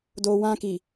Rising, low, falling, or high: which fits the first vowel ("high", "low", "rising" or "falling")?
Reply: low